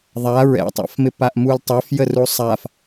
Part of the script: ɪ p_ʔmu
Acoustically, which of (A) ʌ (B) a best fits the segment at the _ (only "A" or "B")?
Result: B